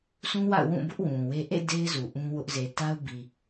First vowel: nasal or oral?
nasal